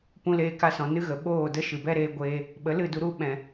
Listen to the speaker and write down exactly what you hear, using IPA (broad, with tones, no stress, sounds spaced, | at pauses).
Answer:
p ũ˧ l eː˧ k a˧ s ɔ̃˨ n ɨ˦ ɣ ə˨ ɓ oː˦˨ d ə˦ ʃ ɨ˨ b ɛ˦ ɾ eː˦ ɡʷ eː˦ | ɓ ə˨˦ l ɨ˦˨ d u˧ ɾ u˦ ɓ ɛ̃˨